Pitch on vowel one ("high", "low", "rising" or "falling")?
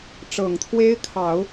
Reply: low